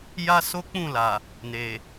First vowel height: low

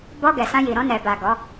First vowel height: mid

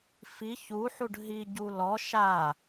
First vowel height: high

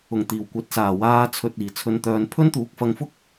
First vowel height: high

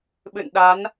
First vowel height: high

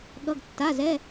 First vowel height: mid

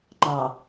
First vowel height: low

